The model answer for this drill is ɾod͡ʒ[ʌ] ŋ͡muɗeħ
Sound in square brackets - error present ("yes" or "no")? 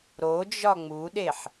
yes